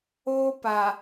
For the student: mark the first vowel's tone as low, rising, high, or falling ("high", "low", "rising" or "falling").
high